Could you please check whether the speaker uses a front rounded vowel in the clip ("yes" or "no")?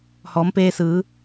no